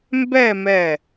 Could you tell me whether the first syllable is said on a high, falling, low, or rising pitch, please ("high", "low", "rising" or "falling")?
falling